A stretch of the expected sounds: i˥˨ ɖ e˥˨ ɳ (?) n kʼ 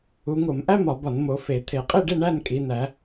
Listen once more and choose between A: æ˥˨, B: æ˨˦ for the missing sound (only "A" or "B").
A